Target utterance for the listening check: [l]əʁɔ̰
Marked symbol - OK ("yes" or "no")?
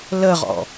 yes